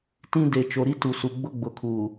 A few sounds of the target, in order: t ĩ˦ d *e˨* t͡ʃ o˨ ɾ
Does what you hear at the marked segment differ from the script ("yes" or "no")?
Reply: no